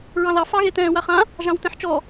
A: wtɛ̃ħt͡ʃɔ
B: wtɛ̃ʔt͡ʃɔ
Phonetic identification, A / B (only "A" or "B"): A